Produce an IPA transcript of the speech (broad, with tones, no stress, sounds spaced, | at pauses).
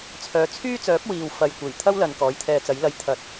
t͡sʰ œː˨˧ t͡sʰ yː˥ t͡s œː˨˥ p̚ w iː˨ w f ɐ˨ j kʷ e˨˩ j t̪ʰ ɐ˥ w l ɐ˨ n k ɔː˨˥ j t̪ʰ ɛː˧ t͡s ɐ˨˥ j l ɐ˧ j t̪ʰ ɐ˨˥ t̚